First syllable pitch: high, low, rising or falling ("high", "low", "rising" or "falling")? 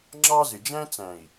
high